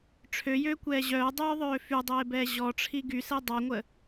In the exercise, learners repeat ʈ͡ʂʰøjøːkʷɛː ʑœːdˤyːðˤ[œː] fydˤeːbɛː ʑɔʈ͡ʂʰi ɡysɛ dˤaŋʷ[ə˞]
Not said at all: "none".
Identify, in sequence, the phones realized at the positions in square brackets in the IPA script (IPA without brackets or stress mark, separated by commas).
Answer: øː, ə